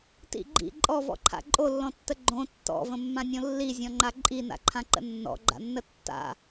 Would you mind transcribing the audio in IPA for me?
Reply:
t ḭ ɡ͡ǃ ḭ ǃʼ ɔ v ɔ̰ ǃʰ a̰ ǃʼ o lː ɔ̃ tː ə ɡ͡ǃ õ tː ɔ̰ v ə̃ mː ã nʲ õ lː i zʲ ɔ̃ ŋ͡ǃ a ǃʼ i n a̰ ǃʰ ã ǃ ə̰ nː ɔ̰ ɡ͡ǃ a̰ nː ə tː a̰

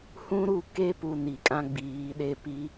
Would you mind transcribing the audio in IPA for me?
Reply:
h ũ˦ ɾ u˦˨ k e˦ p u˨ n i˨ kʼ ã˦ ɡ͡b iː˨˦ ɗ e˦ p i˦

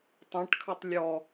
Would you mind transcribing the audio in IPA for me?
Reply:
tˤ ɛ̃ ʈ kʰ ɵ tˤ lʲ ɔ

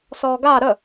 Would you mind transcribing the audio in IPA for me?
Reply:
s ɔː ɡ aː ɾ ə

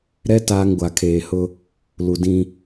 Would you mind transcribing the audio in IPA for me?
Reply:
ɾ ɛ˦ t aː˦ ŋ ɡʷ a˨ kʰ eː˨ h ʊ˦ | l u˨ d ĩ˦

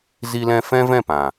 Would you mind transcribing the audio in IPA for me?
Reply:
z i˦ l ɛ̃˦ f ɛ̃˦ v ɛ̃˦˨ p ã˨

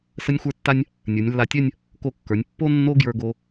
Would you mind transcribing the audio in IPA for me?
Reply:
s ə˥ nʲ xʷ ə˞˥ tː a˥ nʲ | nʲ ə˞˩˧ nʲ lː a˧ tʲ œ˥˧ nʲ | k o˧˩ kː ə˞˩˧ nʲ pː o˥ nː o˥ ɡ j ə˞˧ ɡ o˧

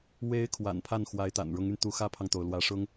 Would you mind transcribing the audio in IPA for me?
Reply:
w e˧˥ ɪ̯ kʰ w a̰˨˩ n pʰ a˥˩ n x w a˧˥ ɪ̯ t̪ a̰˨˩ n ɻ ʊ˧˥ ŋ y˧ n t̪ u˧˥ x ä˥ pʰ ɑ˨ ŋ t̪ o˩ ʊ̯ l w ä˧˥ ʂ ʊ˥ ŋ

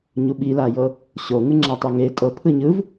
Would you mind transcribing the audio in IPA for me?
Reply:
ɲ u ɓ i l a j ɤ | ɕ o ŋ ɯ ŋ͡ǁ a tˤ u ŋ e tʼ ɤ pʰ ɯ ɲ ɯ v

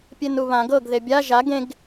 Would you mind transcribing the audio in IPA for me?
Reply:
pʲ e n u β ã ɡ ɤ ɡ ð e bʲ a ʒ a ɡ ẽ ɡ

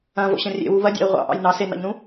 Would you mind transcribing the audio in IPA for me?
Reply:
ɐ̃ v o̰ ɕ ɐ̃ rʲ ḛ w u β ɐ dʲ ɑ̰ i̯ ʁʷ ɑ̰ ʔ ɑ̰ j n ɑ s e n ɑ̰ ʎ n ũ

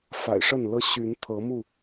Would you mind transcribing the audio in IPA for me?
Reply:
f a̰˨˩ ɪ̯ ʂ ə˥˨ n l ɤ˦ ɕ y˨˦ n t̪ʰ ɤ˨˦ m u˥˨

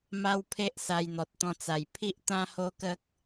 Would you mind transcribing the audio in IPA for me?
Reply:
m a˦ w pʰ e˦ ʔ s a˧ j n̪ ɔ˨ t̚ t̪ ɔ̃˧ t͡s a˨˩ j pʰ i˦ ʔ t̪ ã˦ h o˦ k ə˦ k̚

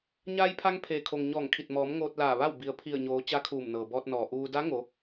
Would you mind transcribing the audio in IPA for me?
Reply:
ɲ aː˧ j pʰ a˧ ŋ pʰ eː˩ kʰ o˩ ŋ ɲ ɔː˧˩ ŋ kʰ i˧˩ t̚ m ɔː˩˧ m ŋ oː˧ t̚ l aː˧˩ ʋ a˥˨ w b i˩ ə̯ pʰ i˧˩ ə̯ ɲ oː˩˧ t͡ɕ a˧˥ kʰ uː˧˩ m n ɤː˩ b ɔː˧ t̚ n ɔː˩ ʔ uː˧ d a˧˥ ŋ o˩˧

